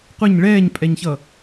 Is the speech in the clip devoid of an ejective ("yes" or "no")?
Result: no